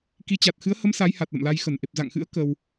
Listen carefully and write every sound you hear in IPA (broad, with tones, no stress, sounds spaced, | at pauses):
k i˨˦ t͡ɕ a˨˩ t̚ x ɨ˨˦ ə̯ h ə˨˦ m s a˨˦ j h a˨˩ t̚ l ə̰˧˨ m l a˧ j x ə˧˩ n ʔ e˨˩ p̚ z a̰ː˧˨ ŋ x ɨ̰˧˥ ə̯ k ə˧ w